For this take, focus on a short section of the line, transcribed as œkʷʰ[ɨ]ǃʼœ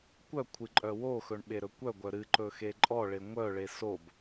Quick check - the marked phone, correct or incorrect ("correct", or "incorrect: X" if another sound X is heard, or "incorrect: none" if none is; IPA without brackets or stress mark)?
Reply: correct